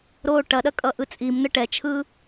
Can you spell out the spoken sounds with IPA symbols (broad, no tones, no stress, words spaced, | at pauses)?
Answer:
ɾoːʈɐɗɐ kʼʌʔɯt͡sʼimn̪ə ʈɛt͡ʃʰɯ